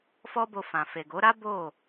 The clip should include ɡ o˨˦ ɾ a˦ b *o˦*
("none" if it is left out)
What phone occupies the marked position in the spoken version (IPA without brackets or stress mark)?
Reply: o˦˨